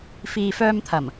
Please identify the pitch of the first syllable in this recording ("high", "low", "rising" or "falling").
low